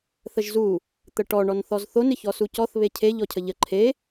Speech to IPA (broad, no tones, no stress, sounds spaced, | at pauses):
θ ə ʒ z u | t̪ ə ʈ ɔ ɳ ɔ n θ ɔ z θ o n ɪ ç ɔ s u c ɔ θ β e cʰ e ʎ ɔ cʰ ə ʎ ə ǃʰ e